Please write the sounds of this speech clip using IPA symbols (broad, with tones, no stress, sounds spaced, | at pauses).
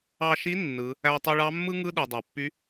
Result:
ɑ˧ ʃ i˧˥ nː ɯ˩˧ | æ˧ tˤ i˧ ɭ ɑ˧˥ mː ɯ˥ ŋ ɯ˥ ɗ ɯ˩ dˤ ɑ˩ pː y˧˥